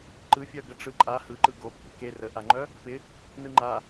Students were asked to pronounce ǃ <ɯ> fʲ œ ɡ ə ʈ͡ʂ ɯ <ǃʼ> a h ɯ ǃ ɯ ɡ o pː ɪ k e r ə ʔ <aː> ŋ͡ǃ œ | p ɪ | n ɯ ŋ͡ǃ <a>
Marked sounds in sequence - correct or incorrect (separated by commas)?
correct, correct, incorrect, correct